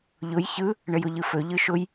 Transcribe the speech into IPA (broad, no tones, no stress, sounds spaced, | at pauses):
ʎ ʊ j ç ɯ | ɳ ə j ʊ ʎ ɯ f ɵ ʎ ɯ ʃ ʊ j